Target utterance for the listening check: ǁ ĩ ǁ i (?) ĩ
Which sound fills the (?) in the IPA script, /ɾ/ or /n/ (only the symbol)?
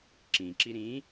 ɾ